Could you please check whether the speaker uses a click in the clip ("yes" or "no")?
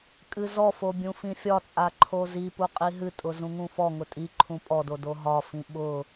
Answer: yes